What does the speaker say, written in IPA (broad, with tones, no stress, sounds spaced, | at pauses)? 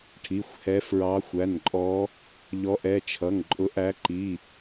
ʈʰ i˩˧˩ xʷ h ɛ˨˦ f ɹ ɑ˨˦ xʷ æ˩˧˩ n ǃʼ ɔ˨˦ | ʎ ɔ˨˦ ʔ ɛ˩˧˩ t͡ʃʰ ʌ˩˧˩ ŋ ǃʼ ʊ˨˦ ʔ æ˨˦ ǃ i˩˧˩